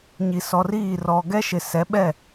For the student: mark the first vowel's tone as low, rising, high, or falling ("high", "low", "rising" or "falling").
low